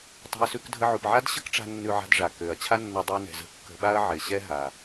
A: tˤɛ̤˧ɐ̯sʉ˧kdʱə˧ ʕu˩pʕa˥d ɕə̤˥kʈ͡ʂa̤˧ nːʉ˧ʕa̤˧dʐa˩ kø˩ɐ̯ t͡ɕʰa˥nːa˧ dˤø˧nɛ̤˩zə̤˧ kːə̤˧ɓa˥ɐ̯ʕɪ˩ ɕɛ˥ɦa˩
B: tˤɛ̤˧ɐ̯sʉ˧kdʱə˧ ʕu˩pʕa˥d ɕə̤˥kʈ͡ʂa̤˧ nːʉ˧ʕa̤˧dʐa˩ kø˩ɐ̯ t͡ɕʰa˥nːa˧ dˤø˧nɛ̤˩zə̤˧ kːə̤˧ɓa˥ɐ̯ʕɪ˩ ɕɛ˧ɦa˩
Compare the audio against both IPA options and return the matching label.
A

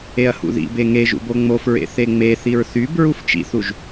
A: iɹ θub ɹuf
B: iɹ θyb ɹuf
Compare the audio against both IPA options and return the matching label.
B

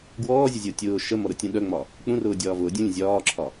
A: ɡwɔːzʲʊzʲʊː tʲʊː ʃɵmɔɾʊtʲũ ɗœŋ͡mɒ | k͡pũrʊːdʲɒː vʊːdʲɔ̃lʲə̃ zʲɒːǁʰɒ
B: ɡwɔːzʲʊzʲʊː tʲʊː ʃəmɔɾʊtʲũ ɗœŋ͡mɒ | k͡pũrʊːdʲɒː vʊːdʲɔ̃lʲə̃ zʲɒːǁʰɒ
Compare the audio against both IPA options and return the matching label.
B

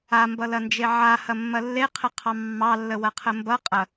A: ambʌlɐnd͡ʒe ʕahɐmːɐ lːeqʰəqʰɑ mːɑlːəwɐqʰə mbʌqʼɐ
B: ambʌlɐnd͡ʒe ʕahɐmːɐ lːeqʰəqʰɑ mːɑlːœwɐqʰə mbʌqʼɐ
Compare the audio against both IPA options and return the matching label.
A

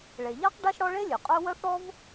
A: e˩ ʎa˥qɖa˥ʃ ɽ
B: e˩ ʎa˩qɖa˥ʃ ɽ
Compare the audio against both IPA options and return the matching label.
A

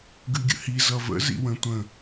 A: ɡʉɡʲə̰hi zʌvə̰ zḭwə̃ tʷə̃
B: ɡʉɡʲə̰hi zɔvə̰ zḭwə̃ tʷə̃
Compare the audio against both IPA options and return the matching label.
A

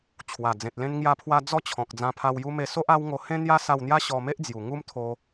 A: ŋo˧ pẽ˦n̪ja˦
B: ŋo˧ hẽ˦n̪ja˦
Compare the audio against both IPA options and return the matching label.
B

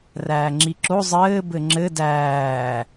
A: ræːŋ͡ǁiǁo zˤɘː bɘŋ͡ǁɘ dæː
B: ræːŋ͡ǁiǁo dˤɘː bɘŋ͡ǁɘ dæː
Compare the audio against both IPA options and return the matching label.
A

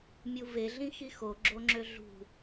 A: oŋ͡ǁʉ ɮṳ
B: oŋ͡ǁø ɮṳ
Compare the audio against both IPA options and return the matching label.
B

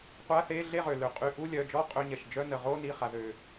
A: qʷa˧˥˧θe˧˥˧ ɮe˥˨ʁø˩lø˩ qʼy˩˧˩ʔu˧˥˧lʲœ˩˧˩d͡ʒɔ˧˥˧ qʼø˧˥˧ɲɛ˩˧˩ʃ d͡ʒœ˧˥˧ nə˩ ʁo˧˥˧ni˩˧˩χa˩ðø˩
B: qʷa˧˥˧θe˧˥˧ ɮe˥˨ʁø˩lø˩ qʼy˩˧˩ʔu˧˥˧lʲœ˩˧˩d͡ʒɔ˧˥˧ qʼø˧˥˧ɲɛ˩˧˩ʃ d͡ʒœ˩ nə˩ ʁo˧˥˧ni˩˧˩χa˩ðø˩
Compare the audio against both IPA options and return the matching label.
A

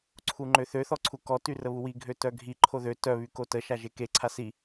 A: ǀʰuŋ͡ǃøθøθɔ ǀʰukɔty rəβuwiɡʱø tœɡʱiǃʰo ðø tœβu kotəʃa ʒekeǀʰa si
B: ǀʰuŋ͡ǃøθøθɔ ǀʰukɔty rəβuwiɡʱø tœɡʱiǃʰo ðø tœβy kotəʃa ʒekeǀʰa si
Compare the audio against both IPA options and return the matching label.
B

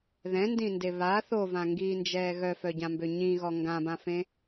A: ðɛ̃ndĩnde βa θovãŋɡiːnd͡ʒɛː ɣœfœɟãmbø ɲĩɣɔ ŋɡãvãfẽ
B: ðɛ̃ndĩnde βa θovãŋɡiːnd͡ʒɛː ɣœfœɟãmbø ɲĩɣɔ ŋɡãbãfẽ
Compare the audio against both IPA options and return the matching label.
B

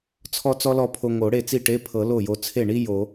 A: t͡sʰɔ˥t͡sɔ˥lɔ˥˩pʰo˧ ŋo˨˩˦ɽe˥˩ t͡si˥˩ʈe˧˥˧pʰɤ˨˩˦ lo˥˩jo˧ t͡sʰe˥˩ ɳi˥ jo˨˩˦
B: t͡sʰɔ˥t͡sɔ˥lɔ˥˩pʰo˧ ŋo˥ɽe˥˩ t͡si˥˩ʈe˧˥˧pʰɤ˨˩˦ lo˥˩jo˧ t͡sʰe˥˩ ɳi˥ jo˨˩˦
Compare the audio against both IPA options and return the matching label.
A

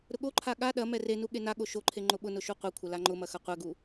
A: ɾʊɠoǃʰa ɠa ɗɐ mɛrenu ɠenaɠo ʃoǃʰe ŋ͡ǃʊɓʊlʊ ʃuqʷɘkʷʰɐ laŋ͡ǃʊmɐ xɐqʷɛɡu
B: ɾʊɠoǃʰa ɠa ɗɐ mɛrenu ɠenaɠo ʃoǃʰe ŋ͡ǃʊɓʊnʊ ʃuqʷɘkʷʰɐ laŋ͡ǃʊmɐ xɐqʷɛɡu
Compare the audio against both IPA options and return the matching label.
B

